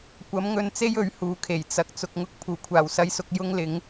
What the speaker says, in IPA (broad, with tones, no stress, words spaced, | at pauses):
kʷɐ˨˥mŋɵ˧nt͡se˥j ɵ˨˥ɥhuː˨kʰe˨˩j t͡sɐ˨k̚ t͡sʊ˨k̚ ŋʊ˨˥k̚pʰuː˨˩kʷʰaː˨˩w sɐ˧jsʊ˧k̚ jʊ˥ŋlɪ˨˥ŋ